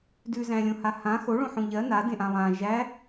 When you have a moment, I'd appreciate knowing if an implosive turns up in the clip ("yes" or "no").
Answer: no